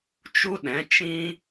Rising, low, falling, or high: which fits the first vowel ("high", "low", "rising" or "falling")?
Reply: high